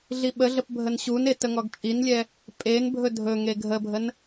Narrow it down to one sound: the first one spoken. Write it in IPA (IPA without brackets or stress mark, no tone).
ɮ